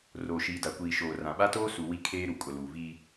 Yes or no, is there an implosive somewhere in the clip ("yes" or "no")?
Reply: yes